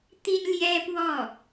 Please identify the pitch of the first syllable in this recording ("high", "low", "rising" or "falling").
high